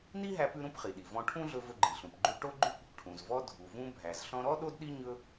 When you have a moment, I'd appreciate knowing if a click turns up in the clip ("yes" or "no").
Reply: yes